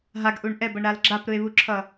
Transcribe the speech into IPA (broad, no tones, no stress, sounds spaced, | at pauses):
ɦ a ɡ ʔ u ɳ ʔ ɛ b ʌ ɳ ɾ a l ɡ͡ǁ a p ɾ ɯ e̯ β u ǁʰ ʌ